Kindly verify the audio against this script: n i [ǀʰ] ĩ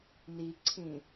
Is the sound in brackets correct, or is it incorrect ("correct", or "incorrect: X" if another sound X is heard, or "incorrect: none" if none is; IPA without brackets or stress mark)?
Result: correct